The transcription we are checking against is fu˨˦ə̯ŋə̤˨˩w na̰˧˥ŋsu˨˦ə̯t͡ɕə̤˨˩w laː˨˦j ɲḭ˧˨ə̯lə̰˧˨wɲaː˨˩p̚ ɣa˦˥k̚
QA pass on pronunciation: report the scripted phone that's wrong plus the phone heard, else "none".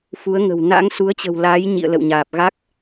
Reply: none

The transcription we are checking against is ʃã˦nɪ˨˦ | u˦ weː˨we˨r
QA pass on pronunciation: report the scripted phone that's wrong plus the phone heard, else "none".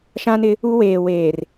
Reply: e˨ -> eː˨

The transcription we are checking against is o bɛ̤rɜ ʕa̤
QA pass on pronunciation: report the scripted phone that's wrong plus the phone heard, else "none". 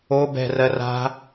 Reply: ʕ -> r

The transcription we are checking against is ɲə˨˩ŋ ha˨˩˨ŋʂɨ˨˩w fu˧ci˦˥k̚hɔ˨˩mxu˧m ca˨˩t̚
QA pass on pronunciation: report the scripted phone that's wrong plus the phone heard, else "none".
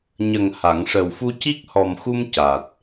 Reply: ɨ˨˩ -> ə˨˩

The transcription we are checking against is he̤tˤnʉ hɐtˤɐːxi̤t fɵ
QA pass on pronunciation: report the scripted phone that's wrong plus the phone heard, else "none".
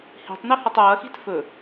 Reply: none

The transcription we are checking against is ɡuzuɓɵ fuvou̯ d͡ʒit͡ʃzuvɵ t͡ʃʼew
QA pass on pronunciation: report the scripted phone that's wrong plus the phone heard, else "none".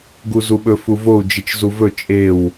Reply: none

